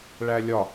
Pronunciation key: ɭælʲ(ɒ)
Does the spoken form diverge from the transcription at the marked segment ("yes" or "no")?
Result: no